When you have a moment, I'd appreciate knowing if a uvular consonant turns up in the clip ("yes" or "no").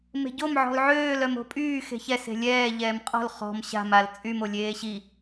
yes